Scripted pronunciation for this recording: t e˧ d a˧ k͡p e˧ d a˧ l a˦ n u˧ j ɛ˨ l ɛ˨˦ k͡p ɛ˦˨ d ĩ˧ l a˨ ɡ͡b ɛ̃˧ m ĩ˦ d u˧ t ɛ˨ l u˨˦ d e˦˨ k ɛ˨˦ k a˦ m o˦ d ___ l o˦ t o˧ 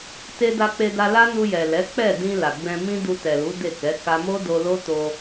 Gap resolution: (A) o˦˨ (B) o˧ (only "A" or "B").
B